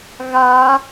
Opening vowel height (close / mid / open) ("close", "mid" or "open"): open